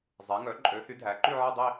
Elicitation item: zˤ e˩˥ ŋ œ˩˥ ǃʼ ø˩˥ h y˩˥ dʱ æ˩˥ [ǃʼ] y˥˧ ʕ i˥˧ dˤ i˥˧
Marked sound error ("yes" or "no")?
yes